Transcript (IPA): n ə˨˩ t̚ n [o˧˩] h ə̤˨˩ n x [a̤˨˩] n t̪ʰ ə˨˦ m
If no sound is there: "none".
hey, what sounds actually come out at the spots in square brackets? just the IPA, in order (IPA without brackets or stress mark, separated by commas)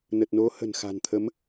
o˨˦, a̤˨˩